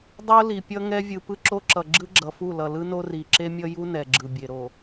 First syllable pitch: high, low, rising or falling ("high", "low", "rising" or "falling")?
high